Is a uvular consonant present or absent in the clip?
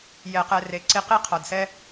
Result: present